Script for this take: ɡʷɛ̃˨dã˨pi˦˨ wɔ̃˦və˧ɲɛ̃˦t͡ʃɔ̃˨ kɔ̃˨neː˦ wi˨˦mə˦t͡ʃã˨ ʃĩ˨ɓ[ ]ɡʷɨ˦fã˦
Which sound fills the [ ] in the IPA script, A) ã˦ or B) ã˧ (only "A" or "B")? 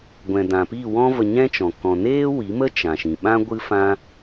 A